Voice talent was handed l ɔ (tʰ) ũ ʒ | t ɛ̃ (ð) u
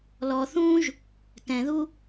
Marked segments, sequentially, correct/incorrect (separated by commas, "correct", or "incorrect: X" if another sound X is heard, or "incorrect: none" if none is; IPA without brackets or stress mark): incorrect: θ, correct